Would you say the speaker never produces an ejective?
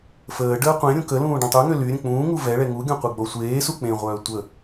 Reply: yes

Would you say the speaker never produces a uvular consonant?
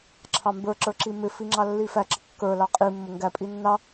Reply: no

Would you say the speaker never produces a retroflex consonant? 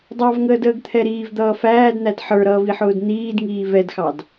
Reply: yes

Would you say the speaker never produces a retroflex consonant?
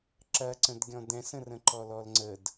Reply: yes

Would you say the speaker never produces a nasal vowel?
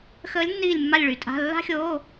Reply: yes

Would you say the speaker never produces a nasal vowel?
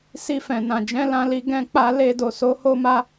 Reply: no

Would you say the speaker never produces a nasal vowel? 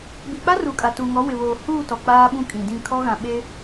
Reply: no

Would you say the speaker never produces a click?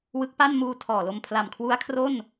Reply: yes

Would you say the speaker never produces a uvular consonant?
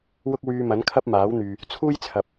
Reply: yes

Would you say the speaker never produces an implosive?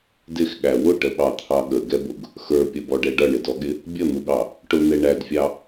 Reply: no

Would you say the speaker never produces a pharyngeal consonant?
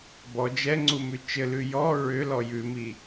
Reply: yes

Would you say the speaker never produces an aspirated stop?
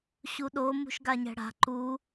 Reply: yes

